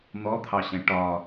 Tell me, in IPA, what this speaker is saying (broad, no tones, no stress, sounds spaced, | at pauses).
n̪ ɔ t̪ʰ ɑ ɕ ɛ̃ ʈ ɒ